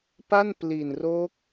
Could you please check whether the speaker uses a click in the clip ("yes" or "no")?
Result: no